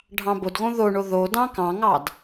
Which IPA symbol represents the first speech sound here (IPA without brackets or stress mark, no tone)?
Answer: ɖʱ